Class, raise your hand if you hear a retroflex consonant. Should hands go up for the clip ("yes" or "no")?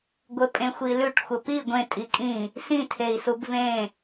yes